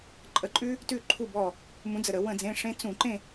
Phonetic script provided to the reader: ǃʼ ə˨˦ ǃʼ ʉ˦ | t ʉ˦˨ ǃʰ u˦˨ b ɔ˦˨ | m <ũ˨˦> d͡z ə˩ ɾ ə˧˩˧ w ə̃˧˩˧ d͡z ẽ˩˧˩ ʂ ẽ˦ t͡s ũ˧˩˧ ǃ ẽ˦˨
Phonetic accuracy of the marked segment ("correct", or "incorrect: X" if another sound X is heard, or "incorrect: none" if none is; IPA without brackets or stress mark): correct